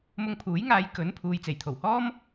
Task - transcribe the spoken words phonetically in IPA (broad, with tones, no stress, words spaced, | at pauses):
mʊ˧ŋpʰuː˨˥jŋaː˨˧j kɵ˨˥n pʰuː˨jt͡se˨˩jt̪ʰo˨˩whɔː˥m